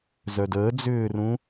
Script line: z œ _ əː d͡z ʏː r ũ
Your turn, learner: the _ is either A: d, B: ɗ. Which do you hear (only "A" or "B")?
A